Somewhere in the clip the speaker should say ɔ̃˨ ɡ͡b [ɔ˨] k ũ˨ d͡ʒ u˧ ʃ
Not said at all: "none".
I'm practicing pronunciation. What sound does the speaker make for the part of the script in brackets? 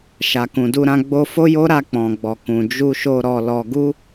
ɔ˨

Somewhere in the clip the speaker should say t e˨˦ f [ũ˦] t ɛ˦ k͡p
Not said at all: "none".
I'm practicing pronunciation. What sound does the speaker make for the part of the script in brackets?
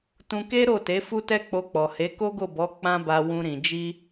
u˦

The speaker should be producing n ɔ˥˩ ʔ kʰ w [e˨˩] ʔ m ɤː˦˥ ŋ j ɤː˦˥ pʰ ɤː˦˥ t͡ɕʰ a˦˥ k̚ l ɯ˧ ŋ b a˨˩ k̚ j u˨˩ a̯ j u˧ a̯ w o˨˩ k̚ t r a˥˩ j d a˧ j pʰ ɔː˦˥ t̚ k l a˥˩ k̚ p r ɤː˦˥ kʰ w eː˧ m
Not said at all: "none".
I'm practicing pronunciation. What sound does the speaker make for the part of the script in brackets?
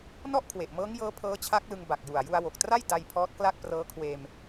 e˨˩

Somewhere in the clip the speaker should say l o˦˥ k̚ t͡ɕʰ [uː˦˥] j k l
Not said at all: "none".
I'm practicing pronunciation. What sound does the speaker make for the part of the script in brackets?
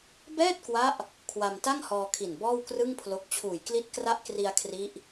uː˨˩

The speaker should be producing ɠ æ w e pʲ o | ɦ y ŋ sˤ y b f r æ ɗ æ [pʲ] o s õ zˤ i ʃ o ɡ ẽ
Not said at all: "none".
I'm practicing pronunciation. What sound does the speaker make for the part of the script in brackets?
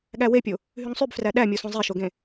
mʲ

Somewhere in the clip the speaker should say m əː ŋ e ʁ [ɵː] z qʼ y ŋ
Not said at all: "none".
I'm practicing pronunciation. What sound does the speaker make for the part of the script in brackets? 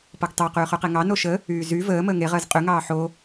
əː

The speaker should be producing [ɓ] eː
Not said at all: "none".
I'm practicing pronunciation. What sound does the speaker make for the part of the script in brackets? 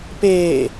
p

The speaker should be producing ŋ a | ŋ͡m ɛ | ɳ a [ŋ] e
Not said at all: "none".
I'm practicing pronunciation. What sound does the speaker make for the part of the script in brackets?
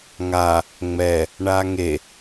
ŋ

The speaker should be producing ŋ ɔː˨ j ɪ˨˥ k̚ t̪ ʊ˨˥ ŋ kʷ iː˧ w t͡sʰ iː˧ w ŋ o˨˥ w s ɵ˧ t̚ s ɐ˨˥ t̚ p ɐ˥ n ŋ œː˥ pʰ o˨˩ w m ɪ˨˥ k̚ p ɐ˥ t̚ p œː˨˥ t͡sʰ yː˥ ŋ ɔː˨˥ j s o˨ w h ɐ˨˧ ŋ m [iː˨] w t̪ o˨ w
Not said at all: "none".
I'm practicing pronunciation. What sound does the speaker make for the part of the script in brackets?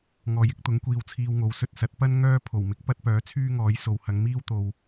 iː˥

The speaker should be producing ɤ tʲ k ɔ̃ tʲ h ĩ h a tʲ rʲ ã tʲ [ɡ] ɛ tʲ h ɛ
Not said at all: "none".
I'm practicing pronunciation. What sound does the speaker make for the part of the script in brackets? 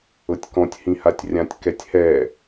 k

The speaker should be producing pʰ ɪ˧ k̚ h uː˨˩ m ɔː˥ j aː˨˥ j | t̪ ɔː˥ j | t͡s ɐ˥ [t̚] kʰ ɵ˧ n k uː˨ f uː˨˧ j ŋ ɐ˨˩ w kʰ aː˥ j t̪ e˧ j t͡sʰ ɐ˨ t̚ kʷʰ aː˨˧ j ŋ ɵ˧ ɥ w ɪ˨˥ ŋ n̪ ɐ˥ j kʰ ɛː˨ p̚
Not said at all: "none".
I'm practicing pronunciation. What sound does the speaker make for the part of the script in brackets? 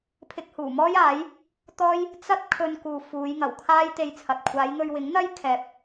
t̚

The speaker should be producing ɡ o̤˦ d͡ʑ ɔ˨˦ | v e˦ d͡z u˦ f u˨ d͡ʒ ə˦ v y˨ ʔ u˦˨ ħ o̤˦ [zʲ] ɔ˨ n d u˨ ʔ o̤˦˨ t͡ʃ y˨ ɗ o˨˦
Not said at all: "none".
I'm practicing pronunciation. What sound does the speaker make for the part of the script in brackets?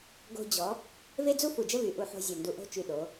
zʲ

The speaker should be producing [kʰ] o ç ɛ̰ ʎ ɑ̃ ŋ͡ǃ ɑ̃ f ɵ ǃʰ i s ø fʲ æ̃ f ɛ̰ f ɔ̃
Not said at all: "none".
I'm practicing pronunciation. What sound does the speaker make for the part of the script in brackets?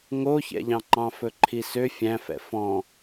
ŋ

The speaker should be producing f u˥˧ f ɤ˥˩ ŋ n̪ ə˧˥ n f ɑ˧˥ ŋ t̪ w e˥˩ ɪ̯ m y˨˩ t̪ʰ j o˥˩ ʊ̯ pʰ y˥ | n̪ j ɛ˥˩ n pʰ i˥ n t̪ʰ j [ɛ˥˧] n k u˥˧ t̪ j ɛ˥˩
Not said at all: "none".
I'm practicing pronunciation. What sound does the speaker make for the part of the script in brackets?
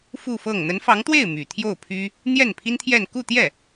ɛ˥˧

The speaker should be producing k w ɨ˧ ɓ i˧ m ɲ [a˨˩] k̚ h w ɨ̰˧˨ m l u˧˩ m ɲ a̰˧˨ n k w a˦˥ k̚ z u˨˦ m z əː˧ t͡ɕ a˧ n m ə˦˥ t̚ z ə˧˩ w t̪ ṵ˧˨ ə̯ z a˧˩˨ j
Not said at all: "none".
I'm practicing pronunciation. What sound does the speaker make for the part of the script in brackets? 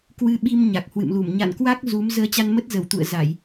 a˨˩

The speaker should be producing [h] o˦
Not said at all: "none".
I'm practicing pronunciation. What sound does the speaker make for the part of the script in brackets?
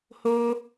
h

